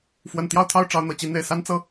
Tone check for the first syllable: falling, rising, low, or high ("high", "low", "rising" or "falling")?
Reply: low